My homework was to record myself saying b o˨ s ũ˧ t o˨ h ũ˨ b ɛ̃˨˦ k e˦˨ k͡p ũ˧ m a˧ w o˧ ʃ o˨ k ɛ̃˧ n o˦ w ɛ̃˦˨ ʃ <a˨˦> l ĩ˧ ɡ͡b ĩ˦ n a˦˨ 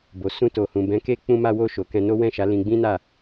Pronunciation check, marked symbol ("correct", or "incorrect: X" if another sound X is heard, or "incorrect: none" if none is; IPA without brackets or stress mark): correct